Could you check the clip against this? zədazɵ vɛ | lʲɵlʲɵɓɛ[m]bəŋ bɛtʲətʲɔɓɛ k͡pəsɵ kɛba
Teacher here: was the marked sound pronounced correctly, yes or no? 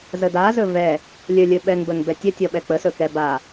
no